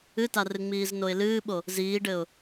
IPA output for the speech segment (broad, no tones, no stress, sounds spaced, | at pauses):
ɨ t a r ɨ ŋ͡m iː z n o ɪ̯ l ɨː ɓ o | z iː ɖ ɘ ʊ̯